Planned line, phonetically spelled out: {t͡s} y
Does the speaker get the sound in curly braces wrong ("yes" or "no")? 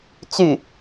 no